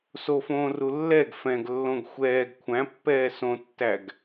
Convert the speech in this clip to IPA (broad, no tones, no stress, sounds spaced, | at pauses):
s o f õː r u lː ɛ ɡ f ɛ̃ ɡ lː õ ɡ xʷ ɛː ɡ kʷʰ æ̃ pː ɛː s õ tː æ ɡ